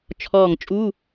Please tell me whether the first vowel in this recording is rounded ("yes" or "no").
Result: yes